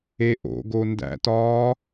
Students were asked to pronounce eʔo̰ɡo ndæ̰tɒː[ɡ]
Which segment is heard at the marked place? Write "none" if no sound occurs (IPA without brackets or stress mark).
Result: none